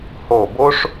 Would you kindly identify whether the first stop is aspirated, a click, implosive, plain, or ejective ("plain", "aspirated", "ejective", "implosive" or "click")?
plain